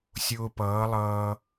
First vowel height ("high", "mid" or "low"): high